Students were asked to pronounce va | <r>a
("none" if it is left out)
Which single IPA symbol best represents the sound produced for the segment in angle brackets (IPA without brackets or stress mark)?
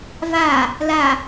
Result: l